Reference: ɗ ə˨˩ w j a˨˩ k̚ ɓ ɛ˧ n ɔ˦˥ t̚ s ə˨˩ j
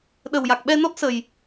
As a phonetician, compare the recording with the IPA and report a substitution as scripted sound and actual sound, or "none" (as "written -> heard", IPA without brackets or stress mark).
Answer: none